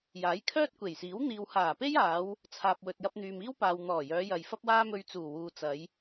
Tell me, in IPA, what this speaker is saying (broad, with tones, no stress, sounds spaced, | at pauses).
j aː˨˥ j kʰ œː˥ t̚ kʷ e˨˩ j s iː˨˥ w n̪ iː˨ w h aː˨˩ p e˥ j aː˨˧ w | t͡sʰ aː˨ p̚ w ɵ˨ t̚ j ɐ˧ p̚ n̪ yː˨ m iː˥ w p aː˨ w n̪ ɔː˨˩ j œː˨˧ j ɐ˨ j f ɐ˥ p̚ w aː˥ m ɵ˧ ɥ t͡s uː˨˩ w uː˨ t͡s ɐ˨˧ j